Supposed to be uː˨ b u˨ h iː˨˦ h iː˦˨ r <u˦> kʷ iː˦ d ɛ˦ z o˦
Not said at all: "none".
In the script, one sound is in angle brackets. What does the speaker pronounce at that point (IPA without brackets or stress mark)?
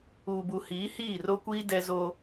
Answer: o˦